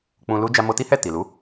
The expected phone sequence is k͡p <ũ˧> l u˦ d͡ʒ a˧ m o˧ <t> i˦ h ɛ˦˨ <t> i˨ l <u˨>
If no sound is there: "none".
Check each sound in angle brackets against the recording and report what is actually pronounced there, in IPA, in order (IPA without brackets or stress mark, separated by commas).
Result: ũ˧, t, t, u˨˦